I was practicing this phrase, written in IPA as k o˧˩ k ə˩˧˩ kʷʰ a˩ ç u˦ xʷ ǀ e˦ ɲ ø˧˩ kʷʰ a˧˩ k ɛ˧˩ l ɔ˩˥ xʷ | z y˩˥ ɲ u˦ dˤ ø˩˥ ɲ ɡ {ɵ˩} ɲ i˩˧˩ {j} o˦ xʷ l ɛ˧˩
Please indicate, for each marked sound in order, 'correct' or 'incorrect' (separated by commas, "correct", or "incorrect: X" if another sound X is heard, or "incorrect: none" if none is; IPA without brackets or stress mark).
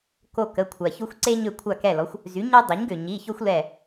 incorrect: ø˩, incorrect: ç